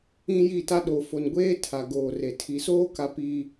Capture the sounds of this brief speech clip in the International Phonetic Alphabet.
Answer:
ĩ˦ji˦˨ta˦ ɗo˨fo˨nɡʷeː˦ tʰa˨ɡoː˨re˨ tʰi˨soː˦ka˨ pi˨

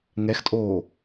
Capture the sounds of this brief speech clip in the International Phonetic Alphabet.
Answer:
ŋɛxtʼoː

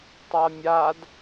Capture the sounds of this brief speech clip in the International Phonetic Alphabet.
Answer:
tˤamʲad

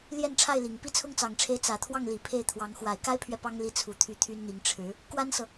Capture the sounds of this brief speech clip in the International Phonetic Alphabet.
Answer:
ljɛ˥˧nʈ͡ʂʰa˥˩ɪ̯li˨˩ŋ pi˥˩t͡sʰʊ˥ŋt͡sɑ˨˩ŋʈ͡ʂʰe˧˥ɪ̯ t͡sä˨˩t̪ʰwɑ˥˩ŋli˨˩ pʰe˥˩ɪ̯t̪ʰwɑ˧˥ŋ xwa˨˩ɪ̯ka˥ɪ̯pʰɥɛ˨ pɑ˥ŋ li˧˥t͡sʰu˨˩ t̪ʰy˥˩t̪ʰy˥nn̪i˧˥ŋ ʈ͡ʂʰɻ̩˧˥ | kwa˥nsɤ˨

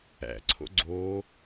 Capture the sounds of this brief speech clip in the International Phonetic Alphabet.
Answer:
æ̰ǀʰo̰ ɡ͡ǀoː

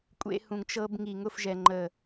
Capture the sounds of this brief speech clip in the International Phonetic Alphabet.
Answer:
kʷʼḛ˧ hũ˨ŋt͡ʃɤ˧b ŋi˨ŋʊ˦˨fʒɛ˨ ŋ͡ǃə˨

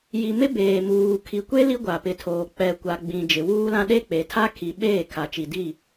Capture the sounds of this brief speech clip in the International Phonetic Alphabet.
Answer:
ji˨mɪ˦ beː˨muː˨ kʰi˨kʷe˦ li˦ɡʷa˨pɪ˨tʰoː˨ k͡pɛ˨kʷa˨ ɡ͡bĩ˨ d͡ʒɪ˨wuː˦lã˦ ɗe˦k͡pe˨tʰa˦ kʰi˨ ɓeː˦˨ kʰa˨t͡ʃi˨di˦˨

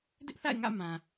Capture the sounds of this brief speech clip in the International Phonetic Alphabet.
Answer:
dɪ˦ʔθa̰˦˨ɪ̯ŋä̰˦˨ mã˨

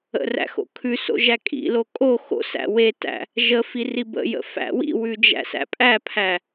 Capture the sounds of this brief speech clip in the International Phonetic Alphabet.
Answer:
ə̰ræ̰ xo̰kʰʉso̰ ʒækʼḭlo kʼo xo̰sæ̰ wetæ̰ | ʒəfi ribə̰jə̰ fæ̰wḭwʉ d͡ʒæ̰sæ̰pʼæpʰæ

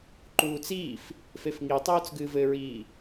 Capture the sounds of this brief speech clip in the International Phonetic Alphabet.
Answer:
ǃuːt͡siːf | fefŋitˤuːt͡s ɡɨːvɘɹiː

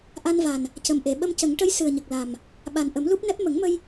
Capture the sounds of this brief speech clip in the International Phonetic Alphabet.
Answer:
ʔa˧nva˨˩n | cə˨˩mʔe˨˩˨ ɓə˧mcə˨˩˦ŋʈə˧˥j sɨ˨˩ə̯ɲə˨˩k̚la˨˩m | ɓa˨˩nʔə˨˩˦mlu˦˥p̚nɛ˦˥p̚ mə˨˩˦ŋmə˧j

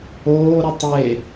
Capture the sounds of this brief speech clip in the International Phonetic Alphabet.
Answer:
oː ɾʊtˤe

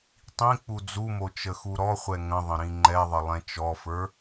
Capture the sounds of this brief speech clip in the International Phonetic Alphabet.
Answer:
tˤĩ k͡pud͡zumo t͡ʃəxuɾɔχʷɛ ŋə̃ðˤə̃ ɾĩŋ͡ǃɛðˤə lˠɛ̃t͡ʃɔfə˞

